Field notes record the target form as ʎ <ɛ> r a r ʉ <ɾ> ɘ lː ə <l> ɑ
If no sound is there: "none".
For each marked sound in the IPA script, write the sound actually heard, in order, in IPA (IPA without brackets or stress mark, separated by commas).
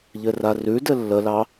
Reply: ɘ, d, l